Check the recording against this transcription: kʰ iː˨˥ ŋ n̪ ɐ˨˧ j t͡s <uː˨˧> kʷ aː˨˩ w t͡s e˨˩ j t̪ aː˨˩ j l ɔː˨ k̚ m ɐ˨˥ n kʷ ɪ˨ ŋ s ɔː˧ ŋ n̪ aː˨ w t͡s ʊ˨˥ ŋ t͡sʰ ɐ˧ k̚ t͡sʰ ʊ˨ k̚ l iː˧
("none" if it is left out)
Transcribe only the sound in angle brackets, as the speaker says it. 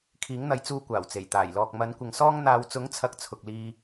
uː˨˧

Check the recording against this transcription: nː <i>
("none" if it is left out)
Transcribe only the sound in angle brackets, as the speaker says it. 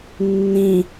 ĩ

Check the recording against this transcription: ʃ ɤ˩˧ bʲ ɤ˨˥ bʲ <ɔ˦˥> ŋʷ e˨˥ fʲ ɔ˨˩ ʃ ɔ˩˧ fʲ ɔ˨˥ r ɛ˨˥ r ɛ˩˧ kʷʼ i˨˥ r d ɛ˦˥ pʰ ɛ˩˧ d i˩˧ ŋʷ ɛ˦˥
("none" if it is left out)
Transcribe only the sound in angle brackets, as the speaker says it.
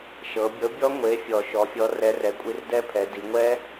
ɔ˦˥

